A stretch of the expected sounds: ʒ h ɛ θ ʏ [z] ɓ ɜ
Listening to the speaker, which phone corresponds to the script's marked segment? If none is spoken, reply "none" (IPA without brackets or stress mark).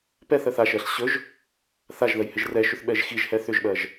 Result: ʒ